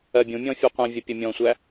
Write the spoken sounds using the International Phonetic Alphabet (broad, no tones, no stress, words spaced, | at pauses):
ɜbʲũmʲɔ̃ fʲuqʷə̃vʲə pʲʊmʲɔ̃sʷæ